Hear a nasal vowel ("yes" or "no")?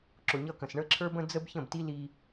yes